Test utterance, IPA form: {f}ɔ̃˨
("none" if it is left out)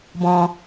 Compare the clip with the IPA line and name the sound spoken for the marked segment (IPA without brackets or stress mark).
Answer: b